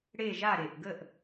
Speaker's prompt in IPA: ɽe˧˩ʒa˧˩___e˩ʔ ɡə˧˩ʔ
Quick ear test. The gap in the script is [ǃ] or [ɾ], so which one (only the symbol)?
ɾ